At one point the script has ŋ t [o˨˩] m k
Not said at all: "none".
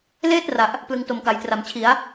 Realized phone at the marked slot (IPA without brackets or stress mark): o˨˩